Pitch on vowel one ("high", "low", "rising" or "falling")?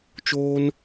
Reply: high